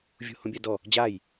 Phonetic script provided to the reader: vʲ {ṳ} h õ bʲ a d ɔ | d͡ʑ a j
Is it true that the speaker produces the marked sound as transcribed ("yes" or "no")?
yes